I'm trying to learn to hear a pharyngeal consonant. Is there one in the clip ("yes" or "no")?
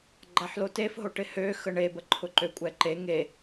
yes